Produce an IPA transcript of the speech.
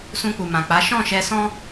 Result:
s ũ˧ k͡p u˨ m ã˨ k͡p a˨˦ ʃ ɔ̃˦˨ ʃ ɛ˧ s ɔ̃˦

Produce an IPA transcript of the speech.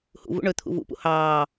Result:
h ṵ v ṵ ɳ ɵ t̪ʰ ṵ v ṵ p ṵ h ɑː

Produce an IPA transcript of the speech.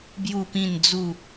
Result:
b j u˥˧ p ĩ˥˧ n d͡z u˥˧

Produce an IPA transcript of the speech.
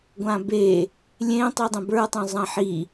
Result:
ɡʷ ã b e | lʲ ẽ tˤ y dˤ ẽ b ə˞ tˤ õ zˤ ã ħ i

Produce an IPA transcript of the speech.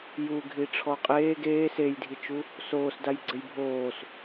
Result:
j u ɡʱ i ʈ͡ʂʰ ɔ qʼ eː ɡ eː s e j dʱ i t͡ʃ u | s oː s d a j ɡ͡ǀ ɘ j bʱ oː s

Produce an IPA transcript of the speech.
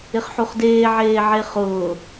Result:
ɪ χ ħ u χ d eː ʕ eː ʕ e χ ʊː

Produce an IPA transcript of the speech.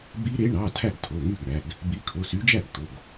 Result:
b i˦˥ ɾ e˨˦ ɳ ɑ˩˧˩ tʰ æ˥˩ ɡ tʰ o˩˧˩ ŋ y˥˩ ɡ ɳ æ˩˧˩ ɡ | b i˨˦ kʰ o˩˧˩ s y˨˦ d͡ʒ æ˥˩ ɡ t̪ o˩˧˩ ɡ

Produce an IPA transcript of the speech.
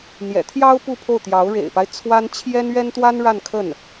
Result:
n̪ j ɛ̰˨˩ t̪ʰ j ɑ˥ ʊ̯ p u˥˧ pʰ o˥˩ ʊ̯ t̪ j ɑ˧˥ ʊ̯ ɻ ḛ˨˩ ɪ̯ p a˦ ɪ̯ t͡sʰ w a˥ n t͡ɕʰ j ɛ˥ n ɥ ɛ˥ n t̪ w a˥ n ɻ a˥˧ n kʰ ə˥˩ n

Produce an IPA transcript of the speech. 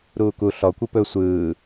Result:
ɾ uː k u ɬ ɔ kʷ ɯ p ɵ sʷ ɯː

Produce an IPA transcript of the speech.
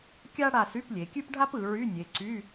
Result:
kʲ a˥ ɽ a˦˨ s y˧˥˧ p lʲ e˩˧ kʲ ʉ˥ p ɖʱ a˥ p ɯ˩˧ ɹ y˧˥˧ nʲ e˩˧ ǀ y˧˥˧

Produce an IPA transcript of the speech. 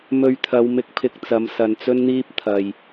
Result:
m ɵ˧ ɥ t̪ʰ ɐ˨˧ w m ɪ˧ k̚ pʰ ɪ˧ k̚ t͡s ɐ˨˧ m s ɐ˨ n t͡s ɵ˥ n n̪ iː˥ p̚ t̪ʰ ɐ˨ j

